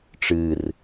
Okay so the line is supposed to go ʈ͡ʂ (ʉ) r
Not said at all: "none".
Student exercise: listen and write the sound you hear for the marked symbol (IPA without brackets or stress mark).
ɨ